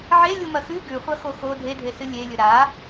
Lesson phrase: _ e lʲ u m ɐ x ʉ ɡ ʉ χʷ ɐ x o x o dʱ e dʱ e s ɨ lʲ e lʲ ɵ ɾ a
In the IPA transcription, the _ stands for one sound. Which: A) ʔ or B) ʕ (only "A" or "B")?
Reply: B